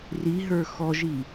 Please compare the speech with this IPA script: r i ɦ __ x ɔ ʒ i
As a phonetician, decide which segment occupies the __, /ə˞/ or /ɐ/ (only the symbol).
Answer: ə˞